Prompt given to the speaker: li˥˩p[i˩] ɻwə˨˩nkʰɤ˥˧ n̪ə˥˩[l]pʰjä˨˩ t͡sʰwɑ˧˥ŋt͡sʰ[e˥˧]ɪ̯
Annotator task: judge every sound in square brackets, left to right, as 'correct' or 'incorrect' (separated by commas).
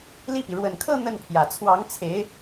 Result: correct, incorrect, incorrect